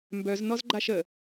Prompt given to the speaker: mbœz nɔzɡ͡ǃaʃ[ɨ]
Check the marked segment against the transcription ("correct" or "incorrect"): incorrect